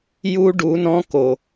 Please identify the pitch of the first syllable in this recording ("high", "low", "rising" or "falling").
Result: high